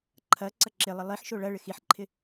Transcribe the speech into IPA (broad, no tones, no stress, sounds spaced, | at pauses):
ǃʰ ɐ ǀ ɐ ǁ ɪ lˠ ə lˠ i ħ ʃ o ɭ ɐ ɭ ɪ x i ħ ǃʰ ɪ